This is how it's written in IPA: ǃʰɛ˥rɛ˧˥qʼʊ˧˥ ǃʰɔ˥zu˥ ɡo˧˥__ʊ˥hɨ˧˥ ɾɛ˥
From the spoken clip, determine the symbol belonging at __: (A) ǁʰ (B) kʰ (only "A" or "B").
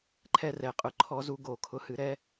B